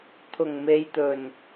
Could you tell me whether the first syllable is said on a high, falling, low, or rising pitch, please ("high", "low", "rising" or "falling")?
low